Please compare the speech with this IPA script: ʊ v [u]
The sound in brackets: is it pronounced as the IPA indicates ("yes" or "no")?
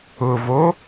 no